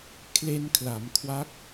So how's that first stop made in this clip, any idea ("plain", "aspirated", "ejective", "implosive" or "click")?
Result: aspirated